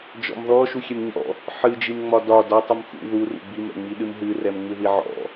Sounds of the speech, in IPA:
d͡ʒ ɔ̰ m ð ɔ ʃ u xʲ ɛ m ɲ ɔ̰ | ħ ɨ d͡ʒ i m ŋ͡m ɒ d ɒ d ɒ tˤ ɨ m x ṵ ð u r ṵ b i m ɛ̰ ŋ͡m i ɗ ɨ m ɦ ɨ r ɛ m ŋ͡m ɨ ð i ʕ ɔ̰

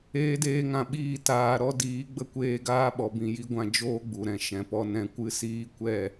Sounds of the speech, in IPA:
eː˧ d eː˧ ŋ ã˧ ɓ iː˦˨ t aː˧ ɾ ɔ˦ d iː˨˦ ɡ͡b ə˧ kʷ eː˧ ɡ aː˦ ɓ ɔ˨ b ĩ˨ j i˦ ɡʷ ã˧ d͡ʒ oː˦ ɡ͡b u˨ ɾ ɛ̃˧ ʃ ɛ̃˨ p ɔ˧ n ɛ̃˧ kʷ ɨ˦ s iː˦ kʷ ɛ˦˨

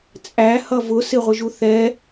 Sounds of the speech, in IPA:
t͡sʼ æ h ʌ v ʊ s ɪ ʁʷ ɪ ʒ u θ ɛ

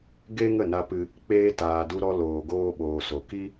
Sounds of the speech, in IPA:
ɡ e˦ ŋ ə˦˨ n a˧ p ɨ˧ | k͡p eː˧ t aː˨ d u˧ ɾ ɔ˧ l oː˨ ɡ oː˧ ɓ oː˨ s o˨ k i˦

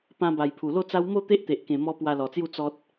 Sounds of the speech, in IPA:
p ã˧ b a˨˩ j pʰ u˨˩ l o˥˧ t͡s a˦ w m o˥˧ t̪ e˦ ʔ t̪ e˨ ʔ k ẽ˨˩ m ɔ˧ p w a˧ l ɔ˨˩ t͡s j u˥˧ t͡s ɔ˦ t̚

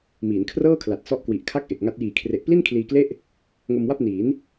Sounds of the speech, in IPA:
m iː˩˦ n kʰ r ɤː˥˩ kʰ l a˨˩ t̚ s ɔ˦˥ ʔ k w i˨˩ ʔ kʰ a˥˩ k̚ ʔ e˨˩ k̚ ŋ a˦˥ t̚ j iː˨˩ kʰ r e˨˩ ʔ p l i˥˩ n kʰ l iː˧ k l e˥˩ ʔ | ŋ o˧ m w a˥˩ p̚ n iː˩˦ n

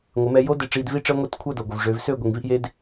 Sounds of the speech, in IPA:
ŋʷ ɪ˩˧ m ɛ˧ j o˦˥ d ɪ˧ ʈ͡ʂ iː˧ d v i˦˥ ʈ͡ʂ əː˦˥ ŋʷ e˦˥ t kʷʰ əː˥˨ d o˩ ɡʷ ɪ˩ v ʐ ø˩˧ v s ø˥˨ ɡʷ i˩ ŋ v i˥˨ ʔ j e˧ d

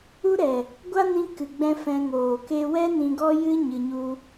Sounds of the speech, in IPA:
u˦ ɾ ɛ˨ | ɡʷ a˦ n ĩ˧ k ɨ˨ ɡ͡b ɛ̃˧ f ɛ̃˧ ŋ oː˨ k e˦ w ɛ˦ n ĩ˧ ɡ ɔ˦ j ɨ˦ ɲ ɨ˧ ɲ u˦

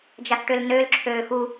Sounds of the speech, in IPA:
d͡ʒ a θ ʈ ø l n ø l ǁʰ øː x u

